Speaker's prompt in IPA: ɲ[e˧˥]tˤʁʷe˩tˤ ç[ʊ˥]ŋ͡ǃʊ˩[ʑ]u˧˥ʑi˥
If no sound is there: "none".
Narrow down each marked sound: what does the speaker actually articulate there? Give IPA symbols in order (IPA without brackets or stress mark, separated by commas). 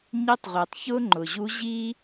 e˧˥, ʊ˥, ʑ